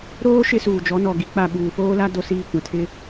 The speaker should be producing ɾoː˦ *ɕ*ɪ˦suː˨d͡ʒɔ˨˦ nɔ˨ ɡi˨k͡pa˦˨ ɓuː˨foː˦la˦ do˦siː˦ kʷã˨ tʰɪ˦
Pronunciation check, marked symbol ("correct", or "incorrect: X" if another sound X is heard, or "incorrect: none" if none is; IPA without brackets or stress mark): incorrect: ʃ